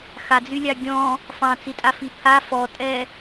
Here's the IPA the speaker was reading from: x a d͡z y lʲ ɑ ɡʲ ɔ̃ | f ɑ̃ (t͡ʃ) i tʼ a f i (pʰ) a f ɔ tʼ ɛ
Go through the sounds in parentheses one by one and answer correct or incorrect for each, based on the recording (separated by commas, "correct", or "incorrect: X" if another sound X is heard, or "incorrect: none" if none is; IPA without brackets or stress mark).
incorrect: t͡s, correct